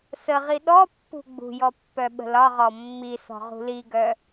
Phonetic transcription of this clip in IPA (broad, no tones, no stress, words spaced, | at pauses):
səʁi ɗɔpːṳ ɡ͡bṳjɔ pːœɓə̤lɒʁɔ mːisɔ̤ ʁṳliɡœ